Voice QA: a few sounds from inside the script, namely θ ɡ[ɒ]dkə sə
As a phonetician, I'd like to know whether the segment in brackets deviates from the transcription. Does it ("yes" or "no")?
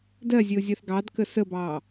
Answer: yes